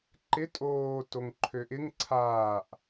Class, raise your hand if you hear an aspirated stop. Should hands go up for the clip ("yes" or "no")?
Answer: yes